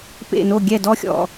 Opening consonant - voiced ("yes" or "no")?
no